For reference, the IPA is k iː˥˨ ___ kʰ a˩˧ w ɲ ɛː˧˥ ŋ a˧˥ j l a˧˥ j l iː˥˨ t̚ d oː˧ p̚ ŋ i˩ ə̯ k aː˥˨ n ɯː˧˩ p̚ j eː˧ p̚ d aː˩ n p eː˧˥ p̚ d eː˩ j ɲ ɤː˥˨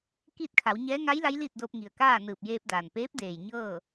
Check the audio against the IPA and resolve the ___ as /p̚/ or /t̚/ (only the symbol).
t̚